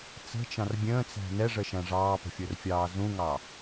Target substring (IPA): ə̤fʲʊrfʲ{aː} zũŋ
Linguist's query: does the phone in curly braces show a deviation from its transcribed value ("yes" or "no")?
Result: yes